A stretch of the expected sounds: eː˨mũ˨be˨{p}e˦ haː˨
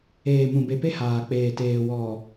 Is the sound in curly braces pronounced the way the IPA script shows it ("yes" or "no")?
yes